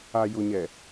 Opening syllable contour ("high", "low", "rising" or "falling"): low